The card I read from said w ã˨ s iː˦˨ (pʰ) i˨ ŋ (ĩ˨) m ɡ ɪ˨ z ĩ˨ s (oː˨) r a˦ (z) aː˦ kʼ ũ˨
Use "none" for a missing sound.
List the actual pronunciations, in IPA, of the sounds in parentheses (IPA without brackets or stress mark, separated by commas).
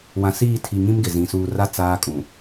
tʰ, ĩ˦, uː˨, t͡s